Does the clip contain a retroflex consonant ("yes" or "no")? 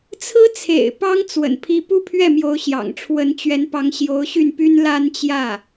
yes